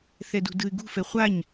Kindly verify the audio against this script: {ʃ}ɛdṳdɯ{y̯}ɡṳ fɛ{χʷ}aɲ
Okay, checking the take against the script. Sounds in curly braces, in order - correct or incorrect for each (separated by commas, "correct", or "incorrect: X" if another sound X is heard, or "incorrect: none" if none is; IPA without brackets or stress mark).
incorrect: θ, correct, correct